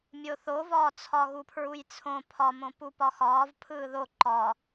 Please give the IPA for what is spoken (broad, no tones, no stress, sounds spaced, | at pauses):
mʲ o θ o v ɒː t͡sʰ ɒ ɣ u pʰ ɹ u j t͡sʰ õ pʰ ɒ m õ p u p ɒ x ɒː v pʰ ɯː ð o ǃ ɒ